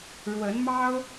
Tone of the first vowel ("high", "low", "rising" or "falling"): rising